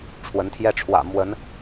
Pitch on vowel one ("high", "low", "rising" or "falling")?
rising